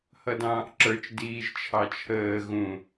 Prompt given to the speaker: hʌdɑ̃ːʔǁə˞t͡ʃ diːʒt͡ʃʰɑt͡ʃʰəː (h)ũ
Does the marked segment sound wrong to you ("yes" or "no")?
yes